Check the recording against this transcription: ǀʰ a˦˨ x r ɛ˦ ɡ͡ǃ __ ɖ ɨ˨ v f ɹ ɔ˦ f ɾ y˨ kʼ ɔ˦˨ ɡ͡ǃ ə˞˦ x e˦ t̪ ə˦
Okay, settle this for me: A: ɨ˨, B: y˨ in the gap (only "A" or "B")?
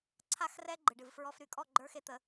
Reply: A